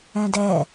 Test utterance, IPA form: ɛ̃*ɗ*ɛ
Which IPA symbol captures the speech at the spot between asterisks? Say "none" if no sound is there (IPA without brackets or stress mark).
d